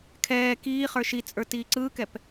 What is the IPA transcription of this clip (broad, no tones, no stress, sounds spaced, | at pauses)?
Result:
kʰ ɛː k iː χ ə˞ ʃ i t͡sʼ ə˞ t iː ǀ ɯː k ɛ p